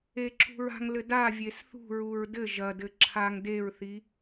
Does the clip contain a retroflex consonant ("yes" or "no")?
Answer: no